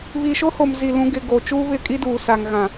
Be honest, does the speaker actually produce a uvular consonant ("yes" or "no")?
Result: no